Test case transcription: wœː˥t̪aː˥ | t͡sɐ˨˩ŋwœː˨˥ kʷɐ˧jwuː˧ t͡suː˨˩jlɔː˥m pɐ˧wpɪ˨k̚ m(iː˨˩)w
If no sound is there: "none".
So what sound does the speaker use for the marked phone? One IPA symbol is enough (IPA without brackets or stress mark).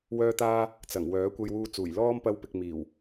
iː˨˩